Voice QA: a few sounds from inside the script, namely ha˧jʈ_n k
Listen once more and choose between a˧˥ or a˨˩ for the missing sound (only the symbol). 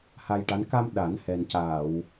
a˧˥